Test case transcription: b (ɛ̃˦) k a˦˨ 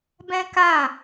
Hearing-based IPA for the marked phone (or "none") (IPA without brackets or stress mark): ɛ̃˦